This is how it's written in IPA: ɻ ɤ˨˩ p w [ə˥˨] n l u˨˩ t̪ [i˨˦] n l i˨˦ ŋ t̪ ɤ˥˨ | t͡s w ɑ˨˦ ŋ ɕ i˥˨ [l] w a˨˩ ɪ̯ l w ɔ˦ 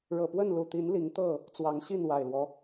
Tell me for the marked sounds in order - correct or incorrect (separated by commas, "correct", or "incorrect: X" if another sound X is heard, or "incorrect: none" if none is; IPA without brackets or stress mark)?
correct, correct, incorrect: n